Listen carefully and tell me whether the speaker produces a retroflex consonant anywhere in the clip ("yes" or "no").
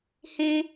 no